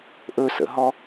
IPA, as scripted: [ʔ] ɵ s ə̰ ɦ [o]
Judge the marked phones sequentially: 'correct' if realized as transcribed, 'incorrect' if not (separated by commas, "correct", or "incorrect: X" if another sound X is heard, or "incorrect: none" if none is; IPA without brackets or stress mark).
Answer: correct, incorrect: ɔ